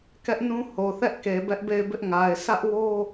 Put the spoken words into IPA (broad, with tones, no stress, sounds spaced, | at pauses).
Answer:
k ɛ˦ ʔ n ũ˦ h o˨ θ ɛ˦ ʔ k e˨ b ɛ˦ ʔ b e˦˨ ɪ̯ b ɪ˦ ʔ ŋ a˨ ɪ̯ sʰ ä˦ ʔ w o˦